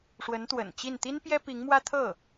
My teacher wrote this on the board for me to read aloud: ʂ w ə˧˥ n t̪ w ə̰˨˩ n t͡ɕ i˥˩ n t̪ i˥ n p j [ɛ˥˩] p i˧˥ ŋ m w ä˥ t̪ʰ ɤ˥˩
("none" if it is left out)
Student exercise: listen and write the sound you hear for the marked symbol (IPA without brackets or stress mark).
ɛ˥